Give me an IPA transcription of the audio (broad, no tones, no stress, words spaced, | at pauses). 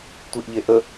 tʷiʔʎeʔə